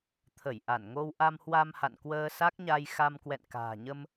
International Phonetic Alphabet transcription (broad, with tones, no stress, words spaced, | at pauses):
t̪ʰə˧˩jʔa˧˩nŋo˧w ʔa˧mhwa˧mha̰˧˨nkwəː˧ sa˦˥k̚ɲa˧j xa˧mkwɛ̰˧˨nka̤ː˨˩ɲə˧m